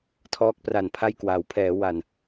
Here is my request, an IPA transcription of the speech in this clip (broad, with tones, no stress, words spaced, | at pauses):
tʰɔː˦˥k̚pra˨˩npʰa˥˩jkwaː˩˦w pʰɛː˩˦ wa˨˩n